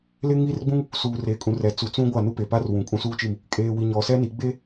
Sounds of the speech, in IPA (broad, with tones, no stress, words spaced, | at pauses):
lɪ˦ŋi˦rɡ͡bũ˦ŋ | suː˨reː˨kʼũ˨rɛ˨ t͡su˨t͡sũ˦ɡʷa˦˨ nu˦pe˨pa˦r wũ˨kʼũ˦suː˦t͡ʃi˦˨m | kʼeː˨wi˨ ɲɔ˨sɛ˦ni˨˦ ɡ͡be˦